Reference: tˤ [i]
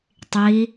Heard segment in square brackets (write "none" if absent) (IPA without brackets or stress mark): i